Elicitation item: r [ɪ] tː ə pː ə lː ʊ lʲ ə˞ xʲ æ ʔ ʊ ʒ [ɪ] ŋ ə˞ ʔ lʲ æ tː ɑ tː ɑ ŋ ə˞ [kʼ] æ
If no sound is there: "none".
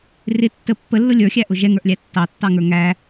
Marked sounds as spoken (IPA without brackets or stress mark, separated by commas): ɪ, ɛ, ŋ